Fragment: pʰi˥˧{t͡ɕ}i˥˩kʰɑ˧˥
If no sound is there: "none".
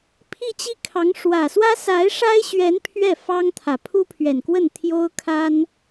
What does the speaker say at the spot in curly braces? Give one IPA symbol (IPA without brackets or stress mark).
t͡ɕ